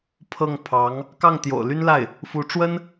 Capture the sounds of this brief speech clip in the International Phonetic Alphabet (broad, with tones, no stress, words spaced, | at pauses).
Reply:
pʰɤ˥˩ŋ pʰɑ˧˥ŋ | kɑ˥˩ŋt̪jo̰˨˩ʊ̯ly˥nla˥˩ɪ̯ | fu˧˥ʈ͡ʂwə˥n